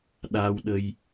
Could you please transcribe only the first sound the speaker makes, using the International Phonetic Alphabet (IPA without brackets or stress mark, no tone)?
ɗ